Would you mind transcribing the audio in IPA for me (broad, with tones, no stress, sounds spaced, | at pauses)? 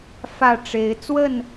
f ä˥˨ ʈ͡ʂ e˨˦ ɪ̯ t͡s w ə˥˨ n